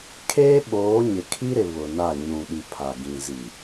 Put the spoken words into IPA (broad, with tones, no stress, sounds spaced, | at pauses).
kʰ eː˦ ɓ oː˨˦ ɲ ɪ˨ kʰ i˦ ɾ ɪ˨ β ʊ˨ n a˦˨ ɲ ũ˨ ɗ i˨ pʰ a˨ ɡ ĩ˨ z i˨